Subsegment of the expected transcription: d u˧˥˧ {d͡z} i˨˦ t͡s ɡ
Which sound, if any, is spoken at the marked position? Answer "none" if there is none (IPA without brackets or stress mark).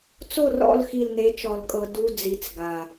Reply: d͡z